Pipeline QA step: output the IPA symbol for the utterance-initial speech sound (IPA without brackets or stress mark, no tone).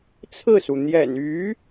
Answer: t͡sʰ